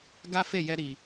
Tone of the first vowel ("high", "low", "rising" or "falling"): high